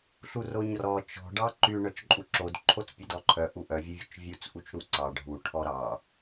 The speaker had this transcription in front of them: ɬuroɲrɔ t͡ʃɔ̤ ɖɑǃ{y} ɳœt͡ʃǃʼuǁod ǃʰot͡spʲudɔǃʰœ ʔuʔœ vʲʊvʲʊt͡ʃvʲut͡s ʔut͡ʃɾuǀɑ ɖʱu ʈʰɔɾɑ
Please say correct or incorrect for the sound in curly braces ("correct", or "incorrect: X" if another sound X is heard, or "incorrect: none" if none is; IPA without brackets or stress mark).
correct